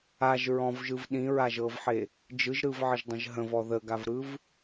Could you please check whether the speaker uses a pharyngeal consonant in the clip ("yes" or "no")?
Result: yes